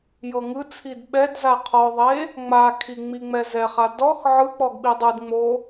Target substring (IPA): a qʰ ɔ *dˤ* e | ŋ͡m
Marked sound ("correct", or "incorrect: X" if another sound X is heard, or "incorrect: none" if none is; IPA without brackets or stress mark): incorrect: ðˤ